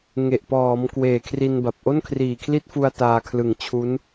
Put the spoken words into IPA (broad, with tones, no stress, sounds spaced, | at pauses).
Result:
ŋ e˨˩ ʔ p ɔː˩˦ m k w eː˨˩ kʰ r i˧ n b a˨˩ p̚ ʔ o˥˩ n kʰ r iː˨˩ kʰ l i˥˩ t̚ f u˧ a̯ t aː˧ kʰ l ɯ˨˩ ŋ t͡ɕʰ u˦˥ n